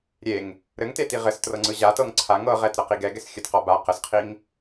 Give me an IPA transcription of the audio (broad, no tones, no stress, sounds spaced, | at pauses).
ɾʲ e ŋ | ɾ ɘ ŋ t e t i ʁ ɘ s t r ɤ ŋ͡ǀ ɯ ʑ a t ɤ ŋ ǀʰ a ŋ ɤ ʁ ɛ t ɾ ɤ q i ɡ ɛ ɡ ɛ s xʲ ɘ t q ɔ b a q ə s qʰ i ŋ